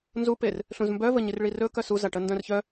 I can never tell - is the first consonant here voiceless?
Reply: no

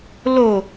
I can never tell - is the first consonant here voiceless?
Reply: no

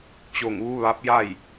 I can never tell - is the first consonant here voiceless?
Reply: yes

